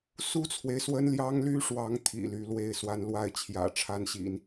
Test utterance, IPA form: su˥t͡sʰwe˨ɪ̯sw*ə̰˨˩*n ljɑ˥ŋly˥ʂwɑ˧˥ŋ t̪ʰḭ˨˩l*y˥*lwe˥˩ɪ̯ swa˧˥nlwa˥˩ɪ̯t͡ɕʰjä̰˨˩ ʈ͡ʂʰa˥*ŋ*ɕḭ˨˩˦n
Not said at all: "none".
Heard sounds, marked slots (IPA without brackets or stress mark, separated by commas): ə˥, y˧˥, n